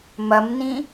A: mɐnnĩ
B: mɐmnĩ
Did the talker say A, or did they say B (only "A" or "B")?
B